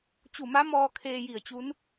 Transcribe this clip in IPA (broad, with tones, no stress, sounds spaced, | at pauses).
t͡ɕ u˧˩ m a˧˥ m ɔː˧ kʰ eː˧ j i˧˩ ə̯ t͡ɕ u˧˥ n